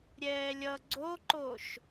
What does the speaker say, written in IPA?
ɾʲ ɛː lʲ ʌ ɡ͡ǀ o ǃ o ʃ

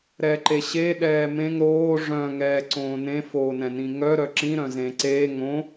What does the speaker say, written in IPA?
ɾ ɛ ǃ e ɕ e ɗ ɛː m ẽ ŋ ɾ oː ʐ œ̃ ŋ ɛː ǀ õː n ẽ f oː n ɛ̃ n ĩ ŋ œ ɾ œ ǁ ĩ ɾ œ̃ z ẽ ǀ eː ŋ õ

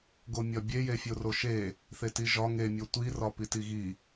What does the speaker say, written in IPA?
ɡ o mʲ ɒ bʲ e j e fʲ o r o ʃ e | θ e t i ʒ ɒ ŋ e mʲ o tʷ i r ɒ p i t i ɣ i

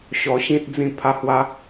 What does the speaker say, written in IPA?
ɕ ɔ˧ ɕ ĩ˦ t̚ d͡z ĩ˥˧ pʰ a˦ h w a˦

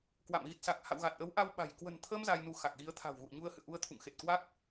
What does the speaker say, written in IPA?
k w a̰˧˨ m ɣ i˨˩ t̚ s a˨˩ k̚ h a̰˧˨ w ɣ a˨˩ t̚ ʔ əː˨˦ w ʔ a˧ w ɓ a̤˨˩ j k w ə̤˨˩ n t̪ʰ əː˧ m z a˧ j n u˨˦ x a˨˩ k̚ ɣ i˨˦ ə̯ t̪ʰ a̤˨˩ w ɣ ṵ˧˨ ə̯ ɲ u˧ ə̯ h ɨ̰˧˨ ə̯ ʔ u˧ ə̯ t̪ʰ ṵ˧˨ ŋ x e˨˩ t̚ k w a˦˥ k̚

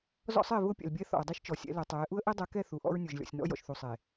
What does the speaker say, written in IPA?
z ɔ̰˦ sˤ ɪː˦˨ v ʊː˦ pʲ ɛ̰˨ l bʲ ɛ˦ θ ɔ̰˨ ə̯ dˤ i˦ ʃ t͡ʃ ɔ˨ sʲ ɛ̰˨˦ l ɛ˨ tˤ ɛː˨˦ ʔ u˦ ə̯ ʔ e˦ dˤ ɛ˨˦ k ɛ˦˨ θ u˨ ʔ ɔ̰˦ ɹ nʲ ʊː˨ ʒ lʲ ɔ̰˨ sʲ n ɔ̰˦ j ɔ̰˨ ʃ θ u˨ sˤ e˨

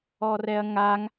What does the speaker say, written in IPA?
ɔ r ɛ ɐ̯ ŋ a ŋ

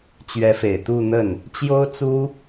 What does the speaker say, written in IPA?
t͡ɕ ɥ ɛ˧˥ f e˨˩ ɪ̯ t̪ u˥˧ n̪ ə˥˩ n | t͡ɕ j o˥ ʊ̯ t͡s u˥

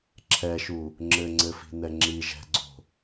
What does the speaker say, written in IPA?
ǁʰ ɛ ʃ u | ŋ͡ǁ ɘ ŋ͡ǀ ɘ f i̤ n ɛ ŋ͡ǁ i ʒ ɛ̤ ɡ͡ǀ o̤

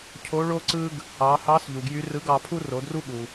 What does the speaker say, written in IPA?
cʰ o˧˥ ɭ o˥ ǀ ɯ˥ ɡ | ɑ˩˧ h ɑ˧˥ s ʎ u˩ ɡ j y˧˥ r ɯ˧˥ ɡ ɑ˩˧ pʰ u˥ r o˩˧ d r u˥ ɠ u˩

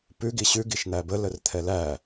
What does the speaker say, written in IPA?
p ʉ ɡ i ɕ ʉ ɡ i ʃ n̪ æ b ə l ə r t̪ʰ ɛ l æ

